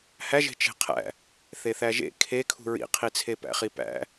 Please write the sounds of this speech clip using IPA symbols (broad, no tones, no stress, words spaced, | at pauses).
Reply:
hæʒe̤ t͡ʃe̤qʰæ̰ | θeθæʒḛ kʰe kʰṳɹḭqʰit͡sʰe pæ̰χipæ̰